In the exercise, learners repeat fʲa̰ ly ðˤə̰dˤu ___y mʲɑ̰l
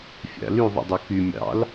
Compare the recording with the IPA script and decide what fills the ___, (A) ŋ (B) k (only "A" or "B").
B